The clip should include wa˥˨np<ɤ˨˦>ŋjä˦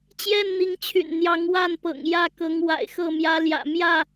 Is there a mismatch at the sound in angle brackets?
yes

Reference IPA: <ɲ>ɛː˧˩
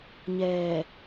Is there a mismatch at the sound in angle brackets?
no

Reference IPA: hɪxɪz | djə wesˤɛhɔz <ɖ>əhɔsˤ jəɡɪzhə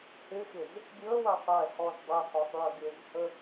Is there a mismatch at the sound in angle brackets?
yes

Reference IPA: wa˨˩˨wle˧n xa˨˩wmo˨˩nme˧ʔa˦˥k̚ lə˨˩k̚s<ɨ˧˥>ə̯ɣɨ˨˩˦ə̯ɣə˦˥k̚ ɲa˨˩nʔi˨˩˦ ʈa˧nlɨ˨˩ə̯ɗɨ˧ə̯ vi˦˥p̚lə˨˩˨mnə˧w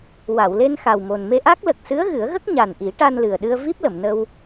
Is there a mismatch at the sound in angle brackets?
no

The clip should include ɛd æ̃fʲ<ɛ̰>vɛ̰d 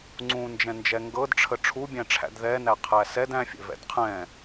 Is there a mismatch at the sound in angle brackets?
no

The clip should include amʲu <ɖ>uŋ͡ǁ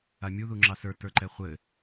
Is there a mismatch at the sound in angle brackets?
yes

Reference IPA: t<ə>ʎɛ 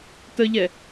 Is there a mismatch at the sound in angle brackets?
no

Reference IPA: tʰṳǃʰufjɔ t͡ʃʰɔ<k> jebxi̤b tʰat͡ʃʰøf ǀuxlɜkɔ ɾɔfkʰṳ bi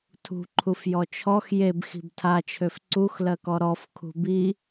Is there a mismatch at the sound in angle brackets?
yes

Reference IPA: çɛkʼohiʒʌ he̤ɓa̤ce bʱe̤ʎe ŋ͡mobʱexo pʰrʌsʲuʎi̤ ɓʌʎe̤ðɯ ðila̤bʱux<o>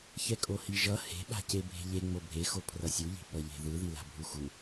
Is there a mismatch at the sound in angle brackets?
yes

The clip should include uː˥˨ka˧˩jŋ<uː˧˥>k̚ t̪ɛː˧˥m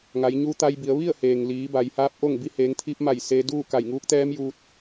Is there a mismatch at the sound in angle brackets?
no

